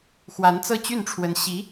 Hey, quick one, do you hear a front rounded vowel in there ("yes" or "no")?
yes